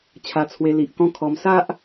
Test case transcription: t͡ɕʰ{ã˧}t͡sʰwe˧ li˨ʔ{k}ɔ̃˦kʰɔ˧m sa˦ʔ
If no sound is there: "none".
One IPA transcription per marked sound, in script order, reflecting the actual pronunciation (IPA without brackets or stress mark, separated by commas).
a˧, k